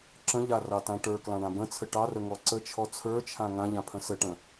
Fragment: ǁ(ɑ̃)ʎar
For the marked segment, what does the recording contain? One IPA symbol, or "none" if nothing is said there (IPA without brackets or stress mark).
ə̃